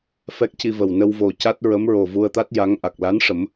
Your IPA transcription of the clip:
f ɛ˦˥ k̚ c i˧ v ə˨˩ w n ə˧ w v o˨˩ c a˦˥ t̚ ɹ ə˧˥ m ɹ o˨˩ v u˧ ə̯ t̪ a˦˥ t̚ j a˧˥ ŋ ʔ a˨˩ k̚ l a˧˥ n ʂ ə˨˩˦ m

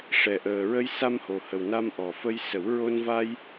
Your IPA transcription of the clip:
ʂ ɛ˨˩ ʔ əː˨˩ ɹ ə˧ j s a˧ m h o˨˩ h ə˨˩ w n a˧ m ʔ ɔ˨˩ f ə˧ j s ə˨˩˦ w ɹ o˧ n v a˧ j

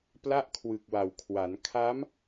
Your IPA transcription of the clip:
p l a˥˩ ʔ kʰ w ɯ˨˩ k̚ w a˨˩ w kʰ w a˩˦ n kʰ a˦˥ m

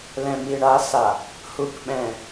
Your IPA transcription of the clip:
l ɛ̃˨ m i˨ ɳ a˨˦ s a˨ | h u˨ k ɓ ɛ̃˨

